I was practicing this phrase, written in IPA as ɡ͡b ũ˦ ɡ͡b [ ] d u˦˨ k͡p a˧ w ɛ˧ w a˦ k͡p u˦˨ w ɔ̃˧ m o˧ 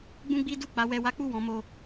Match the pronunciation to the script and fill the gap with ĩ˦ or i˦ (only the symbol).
i˦